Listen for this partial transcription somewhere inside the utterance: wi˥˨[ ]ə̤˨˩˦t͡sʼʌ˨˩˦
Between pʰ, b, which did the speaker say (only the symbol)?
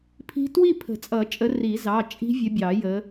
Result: pʰ